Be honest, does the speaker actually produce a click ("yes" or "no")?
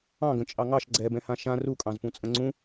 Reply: yes